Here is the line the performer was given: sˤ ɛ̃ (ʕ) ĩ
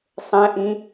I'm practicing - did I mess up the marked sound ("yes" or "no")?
yes